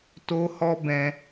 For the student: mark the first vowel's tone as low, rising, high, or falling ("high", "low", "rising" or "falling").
high